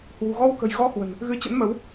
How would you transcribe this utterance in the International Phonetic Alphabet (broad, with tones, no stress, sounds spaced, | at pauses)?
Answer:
h w ṳ˨˩ ɣ ɔ˧ w k ə̤˨˩ j ɣ ɔ˧ h w ə̤˨˩ n | ɣ ɨ˨˦ t͡ɕ ə̰˧˥ n m ə˨˦ w